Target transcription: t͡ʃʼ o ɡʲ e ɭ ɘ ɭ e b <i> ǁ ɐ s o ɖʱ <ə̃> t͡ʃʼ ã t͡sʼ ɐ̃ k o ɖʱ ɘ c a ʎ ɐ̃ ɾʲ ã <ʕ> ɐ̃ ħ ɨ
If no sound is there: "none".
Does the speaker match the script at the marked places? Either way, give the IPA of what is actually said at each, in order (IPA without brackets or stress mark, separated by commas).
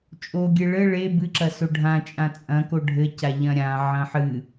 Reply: ɨ, ã, ʕ